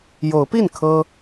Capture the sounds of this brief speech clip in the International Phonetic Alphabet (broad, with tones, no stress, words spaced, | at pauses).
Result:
jo˨˦ʊ̯pi˥˨n kʰɤ˦